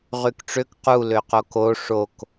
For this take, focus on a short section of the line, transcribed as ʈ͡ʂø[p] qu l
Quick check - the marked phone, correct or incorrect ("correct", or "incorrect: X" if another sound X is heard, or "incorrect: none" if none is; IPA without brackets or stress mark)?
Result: incorrect: k